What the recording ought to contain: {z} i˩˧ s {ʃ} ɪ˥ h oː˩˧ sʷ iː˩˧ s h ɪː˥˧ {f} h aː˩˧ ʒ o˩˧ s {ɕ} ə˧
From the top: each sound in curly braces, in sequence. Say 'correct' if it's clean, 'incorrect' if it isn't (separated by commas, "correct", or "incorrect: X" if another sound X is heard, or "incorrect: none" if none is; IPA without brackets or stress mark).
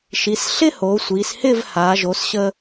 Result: incorrect: ʃ, incorrect: ɬ, incorrect: v, correct